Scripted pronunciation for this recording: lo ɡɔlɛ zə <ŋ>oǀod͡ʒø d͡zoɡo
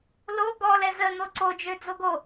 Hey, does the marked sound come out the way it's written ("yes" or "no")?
no